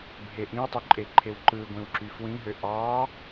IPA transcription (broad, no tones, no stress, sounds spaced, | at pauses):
bʱ e ʔ ĩ w tˤ ø ǃʼ e ǃʰ e w ǃ ɯ ɡʷ ĩ w ǁ y f w ĩ ɦ ø ʔ ɑ